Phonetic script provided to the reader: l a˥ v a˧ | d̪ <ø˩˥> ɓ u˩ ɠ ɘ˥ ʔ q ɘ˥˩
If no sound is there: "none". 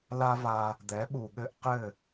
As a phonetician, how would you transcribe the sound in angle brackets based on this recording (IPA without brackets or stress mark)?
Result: ɛ˩˥